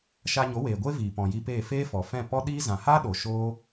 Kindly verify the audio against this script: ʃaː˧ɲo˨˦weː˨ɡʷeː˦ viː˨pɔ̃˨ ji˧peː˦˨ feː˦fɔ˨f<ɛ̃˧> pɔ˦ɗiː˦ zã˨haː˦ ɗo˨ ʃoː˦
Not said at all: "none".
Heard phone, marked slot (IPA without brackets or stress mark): ɛ̃˦˨